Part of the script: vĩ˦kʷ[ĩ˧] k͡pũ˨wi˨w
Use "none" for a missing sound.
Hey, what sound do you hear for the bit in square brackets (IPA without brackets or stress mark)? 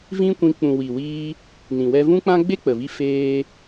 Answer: ĩ˧